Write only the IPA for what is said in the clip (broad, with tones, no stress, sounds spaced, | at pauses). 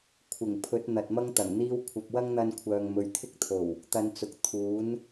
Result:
kʷʰ ɪ˨˩ ŋ pʰ ɵ˨˥ t̚ n̪ ɐ˨ t̚ m ɐ˥ ŋ t̪ ɐ˨˩ ŋ n̪ iː˧ w kʷʰ ɐ˨ p̚ w ɐ˥ ŋ n̪ ɐ˧ n kʷʰ œː˨ ŋ m ɵ˨ ɥ t̪ʰ ɪ˥ k̚ t̪ʰ o˨˩ w | t̪ ɐ˧ n t͡s ʊ˨ k̚ t̪ʰ uː˨˥ n